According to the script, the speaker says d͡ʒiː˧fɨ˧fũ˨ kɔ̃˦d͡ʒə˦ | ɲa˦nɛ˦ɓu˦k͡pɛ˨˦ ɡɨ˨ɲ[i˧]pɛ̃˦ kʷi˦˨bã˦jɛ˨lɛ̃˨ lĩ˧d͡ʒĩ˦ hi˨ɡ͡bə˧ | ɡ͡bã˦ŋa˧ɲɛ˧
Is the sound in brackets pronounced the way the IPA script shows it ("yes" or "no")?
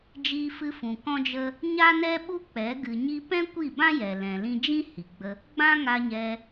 yes